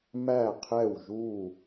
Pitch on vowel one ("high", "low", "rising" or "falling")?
falling